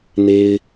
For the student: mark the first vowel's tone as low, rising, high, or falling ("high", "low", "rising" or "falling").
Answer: high